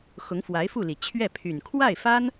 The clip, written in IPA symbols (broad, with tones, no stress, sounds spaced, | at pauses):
x ʊ˧˥ ŋ f w a˧˥ ɪ̯ f u˥˩ l i˨˩ t͡ɕʰ ɥ ɛ˥˩ pʰ y˨˩ n kʰ w a˥˩ ɪ̯ f a˥ n